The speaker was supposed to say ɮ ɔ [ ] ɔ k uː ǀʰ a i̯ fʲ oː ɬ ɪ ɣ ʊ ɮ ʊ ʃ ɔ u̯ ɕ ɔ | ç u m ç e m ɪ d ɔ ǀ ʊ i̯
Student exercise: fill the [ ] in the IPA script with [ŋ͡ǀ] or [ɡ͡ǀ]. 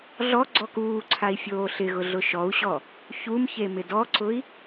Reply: ɡ͡ǀ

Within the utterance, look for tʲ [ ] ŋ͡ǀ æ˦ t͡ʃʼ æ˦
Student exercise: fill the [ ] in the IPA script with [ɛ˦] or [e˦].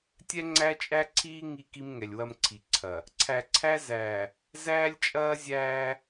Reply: ɛ˦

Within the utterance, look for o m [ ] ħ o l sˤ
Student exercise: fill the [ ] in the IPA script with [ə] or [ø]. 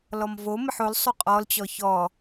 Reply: ə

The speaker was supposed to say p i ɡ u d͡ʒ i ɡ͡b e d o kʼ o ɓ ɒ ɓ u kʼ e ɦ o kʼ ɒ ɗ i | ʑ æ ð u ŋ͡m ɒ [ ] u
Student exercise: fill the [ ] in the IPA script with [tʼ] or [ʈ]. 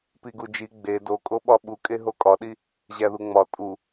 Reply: tʼ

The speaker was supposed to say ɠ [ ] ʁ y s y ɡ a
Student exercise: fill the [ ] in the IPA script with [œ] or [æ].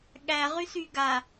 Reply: æ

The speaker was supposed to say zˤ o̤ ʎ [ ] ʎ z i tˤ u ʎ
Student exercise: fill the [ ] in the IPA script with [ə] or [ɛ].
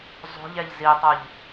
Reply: ɛ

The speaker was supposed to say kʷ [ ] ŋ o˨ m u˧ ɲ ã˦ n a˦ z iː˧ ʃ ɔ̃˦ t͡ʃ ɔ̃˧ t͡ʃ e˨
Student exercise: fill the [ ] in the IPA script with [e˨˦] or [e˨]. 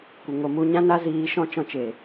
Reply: e˨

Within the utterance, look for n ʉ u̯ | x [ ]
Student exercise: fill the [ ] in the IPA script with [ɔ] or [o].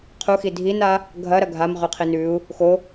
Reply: o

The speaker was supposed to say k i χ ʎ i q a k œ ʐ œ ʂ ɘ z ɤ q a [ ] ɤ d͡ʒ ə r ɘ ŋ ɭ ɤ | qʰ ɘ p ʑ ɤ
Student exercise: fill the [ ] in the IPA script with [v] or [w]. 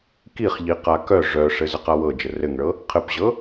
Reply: w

